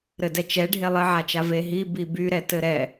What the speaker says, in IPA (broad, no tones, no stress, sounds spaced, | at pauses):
ɾ ɘ d ɛ t͡ʃ ɛ ɖʱ e lˠ ɘ ʕ a t͡ʃ a v e ɦ i b i b y ɾ ɛ t ɘ ɾ ɛ